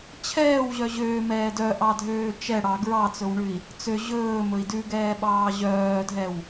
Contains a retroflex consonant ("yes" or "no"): yes